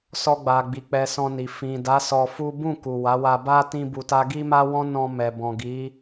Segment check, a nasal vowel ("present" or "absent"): present